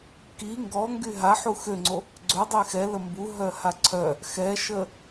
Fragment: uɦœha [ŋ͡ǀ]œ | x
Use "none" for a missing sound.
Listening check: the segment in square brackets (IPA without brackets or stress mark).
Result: ǀʰ